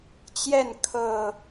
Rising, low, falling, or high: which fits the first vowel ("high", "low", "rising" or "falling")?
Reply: falling